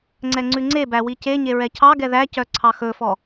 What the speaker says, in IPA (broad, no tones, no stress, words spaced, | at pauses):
ŋ͡ǀɛŋ͡ǀʉŋ͡ǀebæ wiceɲe ɹɛcʰɑɡɛ ðæcœ ǀʰɑxɵfɔ